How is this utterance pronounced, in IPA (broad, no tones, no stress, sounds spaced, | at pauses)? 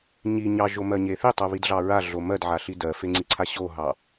ɲ i ɲ ɑ ʒ o m ɜ ɲ e θ i tˤ o β i d ɮ ɑ ɹ a ɮ o m ɜ d ʕ a ɬ i d ɜ f e ŋ͡ǀ i ǀʰ a ɕ o ɦ ɑ